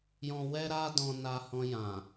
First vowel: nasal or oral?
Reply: nasal